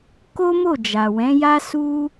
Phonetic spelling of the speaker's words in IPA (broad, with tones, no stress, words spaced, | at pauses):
ko˦mo˦˨ d͡ʒa˨wɛ̃˨˦ja˦ su˦